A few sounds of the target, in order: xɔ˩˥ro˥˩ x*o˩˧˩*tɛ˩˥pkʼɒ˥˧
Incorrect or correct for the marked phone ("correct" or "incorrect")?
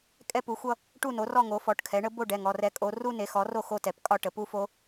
incorrect